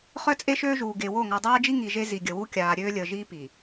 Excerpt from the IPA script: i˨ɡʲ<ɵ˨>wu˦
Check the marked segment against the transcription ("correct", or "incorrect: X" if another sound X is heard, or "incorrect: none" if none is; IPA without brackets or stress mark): incorrect: ə˨